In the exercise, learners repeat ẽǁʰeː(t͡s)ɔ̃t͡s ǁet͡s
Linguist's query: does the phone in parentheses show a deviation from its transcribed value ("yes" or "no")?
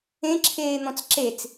yes